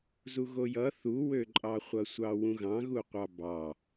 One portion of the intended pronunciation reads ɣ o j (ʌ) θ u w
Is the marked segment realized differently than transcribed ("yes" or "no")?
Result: no